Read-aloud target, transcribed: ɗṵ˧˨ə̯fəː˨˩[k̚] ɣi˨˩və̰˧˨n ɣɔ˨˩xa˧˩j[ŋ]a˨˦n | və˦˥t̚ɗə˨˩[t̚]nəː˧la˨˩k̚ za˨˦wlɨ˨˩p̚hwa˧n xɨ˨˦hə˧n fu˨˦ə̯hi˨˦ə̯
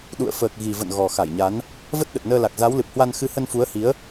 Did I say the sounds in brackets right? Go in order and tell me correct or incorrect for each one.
correct, incorrect: ɲ, correct

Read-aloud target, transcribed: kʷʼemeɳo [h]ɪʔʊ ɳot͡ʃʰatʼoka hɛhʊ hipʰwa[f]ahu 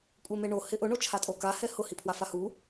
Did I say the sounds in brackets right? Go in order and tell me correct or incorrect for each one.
correct, correct

